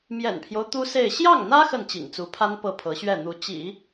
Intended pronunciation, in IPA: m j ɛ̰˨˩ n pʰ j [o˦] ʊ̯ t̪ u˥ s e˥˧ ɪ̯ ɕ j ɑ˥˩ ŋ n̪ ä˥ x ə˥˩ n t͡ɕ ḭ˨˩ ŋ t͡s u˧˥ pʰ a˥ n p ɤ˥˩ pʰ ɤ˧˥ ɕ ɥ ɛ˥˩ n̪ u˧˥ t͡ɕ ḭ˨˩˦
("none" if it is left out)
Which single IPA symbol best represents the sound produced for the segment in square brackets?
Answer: o˦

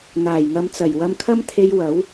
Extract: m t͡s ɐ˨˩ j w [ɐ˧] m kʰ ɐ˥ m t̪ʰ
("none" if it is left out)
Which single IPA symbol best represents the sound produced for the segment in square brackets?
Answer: ɐ˧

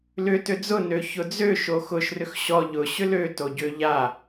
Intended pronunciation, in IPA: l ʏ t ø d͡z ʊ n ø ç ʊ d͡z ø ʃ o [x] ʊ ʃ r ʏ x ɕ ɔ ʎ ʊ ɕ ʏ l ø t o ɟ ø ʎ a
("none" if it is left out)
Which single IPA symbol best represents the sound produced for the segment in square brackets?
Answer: x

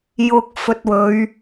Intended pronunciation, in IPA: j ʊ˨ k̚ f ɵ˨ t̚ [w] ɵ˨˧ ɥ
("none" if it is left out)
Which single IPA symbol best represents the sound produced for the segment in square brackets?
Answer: w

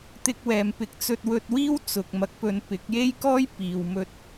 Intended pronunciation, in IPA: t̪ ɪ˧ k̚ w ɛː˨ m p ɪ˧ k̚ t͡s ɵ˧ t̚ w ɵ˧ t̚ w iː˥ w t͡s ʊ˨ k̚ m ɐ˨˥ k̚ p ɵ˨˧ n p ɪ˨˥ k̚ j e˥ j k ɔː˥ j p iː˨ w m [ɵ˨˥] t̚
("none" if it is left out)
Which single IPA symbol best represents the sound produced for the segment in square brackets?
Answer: ɵ˧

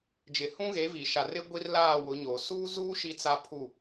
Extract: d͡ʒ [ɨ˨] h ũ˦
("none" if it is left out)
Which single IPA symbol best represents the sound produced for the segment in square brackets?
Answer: ɪ˨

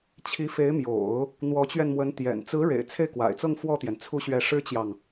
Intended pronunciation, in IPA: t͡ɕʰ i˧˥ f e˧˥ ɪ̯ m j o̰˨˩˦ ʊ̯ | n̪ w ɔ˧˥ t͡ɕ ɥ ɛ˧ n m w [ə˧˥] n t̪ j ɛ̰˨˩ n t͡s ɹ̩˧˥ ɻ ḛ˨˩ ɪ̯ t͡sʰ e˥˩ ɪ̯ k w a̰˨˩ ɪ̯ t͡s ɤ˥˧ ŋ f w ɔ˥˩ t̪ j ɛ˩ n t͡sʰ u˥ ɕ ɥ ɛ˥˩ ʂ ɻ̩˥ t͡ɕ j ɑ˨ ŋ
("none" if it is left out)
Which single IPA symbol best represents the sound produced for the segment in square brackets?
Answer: ə˧˥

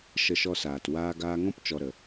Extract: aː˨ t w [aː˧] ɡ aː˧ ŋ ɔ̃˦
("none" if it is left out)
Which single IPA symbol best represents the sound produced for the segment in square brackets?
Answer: aː˧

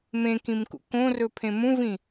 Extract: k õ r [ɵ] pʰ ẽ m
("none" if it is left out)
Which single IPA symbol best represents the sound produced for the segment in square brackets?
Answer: ɵ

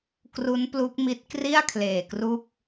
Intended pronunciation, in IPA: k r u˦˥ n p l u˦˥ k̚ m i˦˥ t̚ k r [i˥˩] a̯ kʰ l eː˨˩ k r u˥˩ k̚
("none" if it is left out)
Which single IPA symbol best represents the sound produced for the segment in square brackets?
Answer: i˥˩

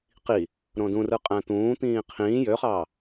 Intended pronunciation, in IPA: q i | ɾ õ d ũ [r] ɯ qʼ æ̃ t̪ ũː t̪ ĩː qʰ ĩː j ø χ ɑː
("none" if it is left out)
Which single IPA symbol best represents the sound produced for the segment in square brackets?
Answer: r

